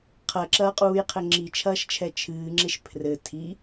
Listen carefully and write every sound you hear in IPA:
qʰ ɐ ǁ ɐː qʼ uː j qʰ ɘ ŋ͡ǁ i t͡ʃʰ ɐː ʃ t͡ʃʰ ɛ t͡ʃʰ ɨː ŋ͡ǁ e ʃ pʰ r ɘ tʰ i

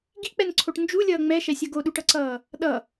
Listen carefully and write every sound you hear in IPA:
ɡ i k͡p ɛ n ǀʰ o ʈ n d͡ʒ u lʲ ʌː ŋ͡m ɛ ʃ ɛ sʲ ʌ ɡ o ɗ u ʈ ʌ ǀ ʌː | ɗ ʌ

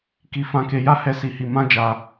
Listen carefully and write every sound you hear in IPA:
k i˧ f ã˧ k e˧ j a˦ h ɛ˦ s i˧ h i˧ m ã˦ d͡ʒ a˧

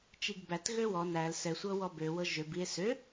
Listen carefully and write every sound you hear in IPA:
t͡ʃ i ɡ b æ t ɣ ø w ɔ n æ l s ɛ sʷ ɤ w ɔ b ø w ɤ ʒ ø b i e̯ s ø

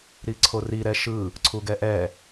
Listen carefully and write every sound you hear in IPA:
ɾ i ǀʰ o r i ɾ ɛ ʃ ɯ | ǀʰ u ɡ ɛ ʔ ɛ

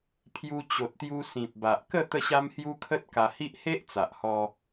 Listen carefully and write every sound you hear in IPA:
pʰ j u˧ t͡ɕ o˨ t̚ t̪ j u˧ s ĩ˨ p̚ b a˨ ʔ k ə˥˧ t̪ ə˥˧ ɕ a˦ m h j u˦ kʰ ə˦ t̚ k a˧ h i˦ ʔ h e˦ ʔ t͡s a˨ ʔ h ɔ˧

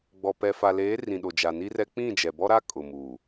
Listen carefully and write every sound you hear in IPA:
ɡ͡b ɔ˨ p ɛ˨ f a˨ l eː˨˦ r ĩ˨ ɗ o˨ d͡ʒ a˨ n i˦ r ɛ˦ k͡p ĩ˦˨ d͡ʒ ɛ˨ b ɔ˦ ɾ a˦ kʼ ʊ˨ m u˨

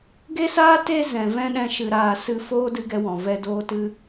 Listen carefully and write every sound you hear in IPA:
ɡ e˦ s aː˦ t e˧ z ɛ̃˨ v ɛ̃˦ ɗ ɛ̃˧ ʃ ɨ˨ ɾ aː˨ s ɨ˦ f oː˦ d ɨ˦ ɡ ɛ˦ w ɔ̃˨ v ɛ˧ d oː˦ t ɨ˦

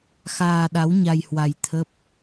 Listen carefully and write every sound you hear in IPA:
x aː˧ ɗ a˨˦ w ɲ a˧ j h w a˧ j t̪ʰ ə˦˥ p̚

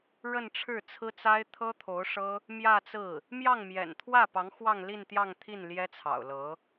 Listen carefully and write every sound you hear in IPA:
ɻ ə˥˧ n ʈ͡ʂʰ ɻ̩˥˩ t͡sʰ ɹ̩˥ t͡s a˥ ɪ̯ t̪ʰ ɤ˥ t̪ʰ o˧˥ ʊ̯ ʂ ɤ˥ | m j ä˥˧ t͡s ɹ̩˥˩ | m j ɑ˥˩ ŋ m j ɛ̰˨˩ n t̪ʰ w ä˥˩ p ɑ˧˥ ŋ x w ɑ˥˧ ŋ l i˥˧ n t̪ j ɑ˥˧ ŋ t̪ʰ i˥˩ n l j ɛ˥ t͡sʰ ɑ̰˨˩ ʊ̯ l ɤ˧˥

